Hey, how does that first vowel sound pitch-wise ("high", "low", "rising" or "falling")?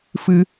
high